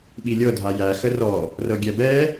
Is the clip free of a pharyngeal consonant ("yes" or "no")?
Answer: yes